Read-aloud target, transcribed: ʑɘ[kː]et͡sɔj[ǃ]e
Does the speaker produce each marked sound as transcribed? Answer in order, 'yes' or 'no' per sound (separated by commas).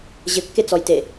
yes, no